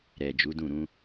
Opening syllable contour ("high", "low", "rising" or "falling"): low